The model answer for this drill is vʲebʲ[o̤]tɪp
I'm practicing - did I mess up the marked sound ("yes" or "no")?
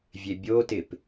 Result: yes